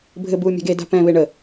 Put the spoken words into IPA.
bʱ ɘ b uː mʲ a̤ ɡ e d a̤ p ɛ̃ β e ɳ ə

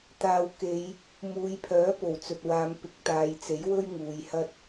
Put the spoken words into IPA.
t̪ aː˨ w k e˨˧ j | m uː˨˧ j pʰ œː˨˥ p o˨˩ w t͡s ɵ˨ t̚ w aː˨˧ m p ɪ˨ k̚ t̪ aː˨˧ j t͡s e˨˥ j w ɵ˥ ɥ ŋ uː˨˧ j h ɐ˥ t̚

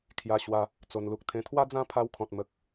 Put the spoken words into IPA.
kʰ j a˧ ɕ w a˧ | t͡s o˨˩ n l u˨ k̚ t̪ʰ ẽ˧ t̪ʰ w a˦ d͡z ã˦ pʰ a˧ w kʰ ɔ̃˨ t̚ m ə˨ k̚

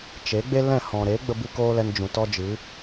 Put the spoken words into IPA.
t͡ʃ e˨˦ ɡ͡b e˦ l ɛ̃˦˨ h ɔ̃˨ ɾ e˨˦ ɡ͡b ə˦ b ɨ˦ k oː˦ l ɛ˧ n d͡ʒ ũ˨ t ɔ˦ d͡ʒ ɨ˨˦

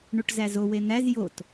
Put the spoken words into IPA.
ɳ u ʈ z æ z o w e n̪ æ z j o t

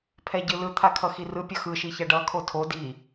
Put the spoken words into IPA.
pʰ ɛ ɟ ɯ l ɯ t̪ʰ a kʰ ʌ x i r ɯ pʲ ʌ x ɯ ʃ i ç ɛ ɖ ʌ kʰ o tʰ o d i

